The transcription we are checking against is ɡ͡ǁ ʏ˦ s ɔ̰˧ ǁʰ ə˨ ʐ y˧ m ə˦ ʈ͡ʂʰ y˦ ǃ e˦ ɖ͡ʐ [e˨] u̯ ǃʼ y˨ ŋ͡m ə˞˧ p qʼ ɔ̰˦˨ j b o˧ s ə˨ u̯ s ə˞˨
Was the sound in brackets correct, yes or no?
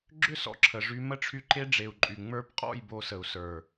yes